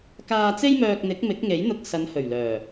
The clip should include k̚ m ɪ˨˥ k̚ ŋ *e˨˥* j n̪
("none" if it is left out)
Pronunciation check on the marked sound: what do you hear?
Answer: e˨˥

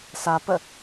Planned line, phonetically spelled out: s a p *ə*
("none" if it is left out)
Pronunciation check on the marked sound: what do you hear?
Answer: ə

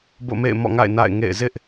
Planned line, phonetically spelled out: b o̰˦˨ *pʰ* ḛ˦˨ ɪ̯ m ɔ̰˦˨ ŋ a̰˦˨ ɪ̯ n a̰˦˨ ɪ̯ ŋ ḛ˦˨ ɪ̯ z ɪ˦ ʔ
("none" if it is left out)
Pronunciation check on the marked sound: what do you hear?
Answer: m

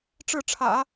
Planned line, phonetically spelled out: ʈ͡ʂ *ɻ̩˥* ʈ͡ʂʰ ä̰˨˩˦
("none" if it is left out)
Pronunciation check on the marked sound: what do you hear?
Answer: ɻ̩˥˩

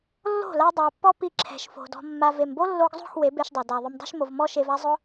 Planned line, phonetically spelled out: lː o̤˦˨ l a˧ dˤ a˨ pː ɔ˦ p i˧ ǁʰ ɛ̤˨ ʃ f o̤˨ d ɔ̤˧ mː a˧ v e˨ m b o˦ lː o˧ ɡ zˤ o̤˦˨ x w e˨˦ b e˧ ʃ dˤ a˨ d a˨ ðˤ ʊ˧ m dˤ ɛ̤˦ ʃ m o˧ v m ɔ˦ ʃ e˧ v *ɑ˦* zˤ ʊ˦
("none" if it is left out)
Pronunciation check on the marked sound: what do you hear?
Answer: a˦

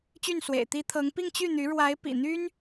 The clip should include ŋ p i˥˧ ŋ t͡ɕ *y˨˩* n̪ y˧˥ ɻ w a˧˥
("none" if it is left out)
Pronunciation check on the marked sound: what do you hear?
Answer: y˥˩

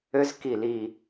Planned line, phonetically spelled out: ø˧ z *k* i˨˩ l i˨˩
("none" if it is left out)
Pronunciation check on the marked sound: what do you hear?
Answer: k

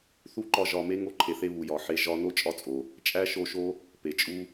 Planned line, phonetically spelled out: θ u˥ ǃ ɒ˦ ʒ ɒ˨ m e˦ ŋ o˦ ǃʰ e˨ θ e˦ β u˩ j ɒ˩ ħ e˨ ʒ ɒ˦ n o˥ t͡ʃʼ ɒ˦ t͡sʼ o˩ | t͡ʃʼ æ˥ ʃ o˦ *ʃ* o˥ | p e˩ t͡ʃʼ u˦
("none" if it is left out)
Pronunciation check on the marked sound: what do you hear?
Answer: ʃ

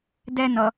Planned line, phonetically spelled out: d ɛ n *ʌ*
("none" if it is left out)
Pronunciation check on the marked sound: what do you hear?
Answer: ʌ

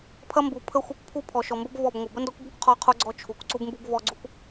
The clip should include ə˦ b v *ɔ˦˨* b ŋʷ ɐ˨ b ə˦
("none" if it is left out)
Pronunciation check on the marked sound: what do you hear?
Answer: ɔ˦˨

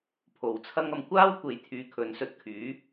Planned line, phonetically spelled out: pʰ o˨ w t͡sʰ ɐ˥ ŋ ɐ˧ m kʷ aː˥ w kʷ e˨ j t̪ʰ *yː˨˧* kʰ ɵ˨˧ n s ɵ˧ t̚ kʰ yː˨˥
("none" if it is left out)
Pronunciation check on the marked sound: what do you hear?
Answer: yː˨˧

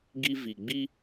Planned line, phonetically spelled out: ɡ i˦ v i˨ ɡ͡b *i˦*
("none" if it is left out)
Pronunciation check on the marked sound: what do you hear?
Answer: i˦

